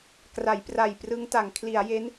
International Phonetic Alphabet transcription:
k r a˩˦ j p r a˨˩ j p r ɯ˦˥ ŋ t a˩˦ ŋ kʰ l i˩˦ a̯ j e˦˥ n

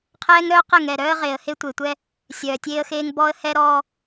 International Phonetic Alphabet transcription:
qʰ ɛː˦ ŋ ɾ œː˦ q ɛ˦˨ ŋ ɛː˨ ɾ œː˦ ə̯ ʁ eː˨ ə̯ h e˦ tʷ e˨ tʷ ɛ˦ | sʲ œː˨ tʲ eː˦ ə̯ x eː˦ ŋ b ɔː˦ ə̯ h ɛː˦ ɾ ɔː˦

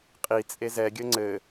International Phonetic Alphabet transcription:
qʼ i t͡sʼ e z ɛ ɡʲ ə ŋ͡ǀ ɘ

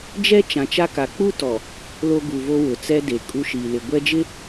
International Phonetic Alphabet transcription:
d͡ʒ ɛ˦ t͡ʃ ã˨ t͡ʃ a˦ k a˨ k͡p u˦ t ɔ˨ | l o˦ ɡ u˨ v o˦ w ʊ˨ t͡s ɛ˦ d e˨ kʼ u˦ ʃ iː˨ l ɪ˨ ɡʷ ɛ˦ d͡ʒ ɪ˦

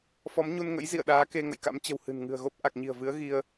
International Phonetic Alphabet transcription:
f ɔ˨˦ m ɲ u˧ n ŋ ə̰˧˥ j z ḭ˧˨ ə̯ ɗ aː˨˦ k e˧ ŋ ə̰˧˨ j k a̰˧˥ m t͡ɕ ə̤˨˩ w h ɨ̤˨˩ n ŋ ɨ̤˨˩ ə̯ ɣ o˦˥ p̚ ʔ a˨˩ k̚ ɲ i̤˨˩ ə̯ v ɨ˨˦ ə̯ ɣ i˧ ə̯

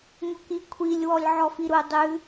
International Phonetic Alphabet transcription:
ŋ o k i kʷʰ i lʲ w ɔ lʲ ʕ ɔ f i ɾ u dˤ ʉ

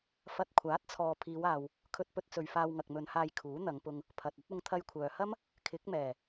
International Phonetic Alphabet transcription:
f ɐ˧ t̚ kʷʰ aː˨˥ t̚ t͡sʰ ɔː˨ pʰ iː˨˧ w aː˨ w | kʰ ɵ˧ t̚ p ɵ˧ t̚ t͡s ɵ˨ ɥ f aː˧ w ŋ ɐ˨ k̚ m ɵ˨˧ n h aː˧ j kʰ uː˨˥ n̪ ɐ˨˧ ŋ p ʊ˧ ŋ | pʰ ɐ˨ t̚ ɐ˥ t̚ ʊ˧ ŋ t̪ʰ ɐ˧ j kʷʰ œː˨ h ɐ˥ m | kʰ ɪ˨˥ k̚ m ɛː˨˩

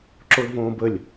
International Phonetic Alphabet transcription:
ǁ o l v õː b ə lʲ

